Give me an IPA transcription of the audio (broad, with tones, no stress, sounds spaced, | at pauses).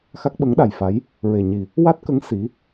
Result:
x a˦˥ k̚ ɓ ə˧˥ ŋ ɗ a˨˩ j f a˧˥ j | ɹ e˨˩ ɲ i˨˩ | w a˦˥ t̚ k ə˧˥ ŋ s i˧˥